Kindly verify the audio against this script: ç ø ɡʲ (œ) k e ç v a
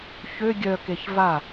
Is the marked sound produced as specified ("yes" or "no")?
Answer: yes